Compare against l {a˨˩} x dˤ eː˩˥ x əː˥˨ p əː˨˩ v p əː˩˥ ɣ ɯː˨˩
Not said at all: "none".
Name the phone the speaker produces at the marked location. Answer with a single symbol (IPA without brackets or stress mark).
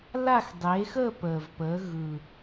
a˥˨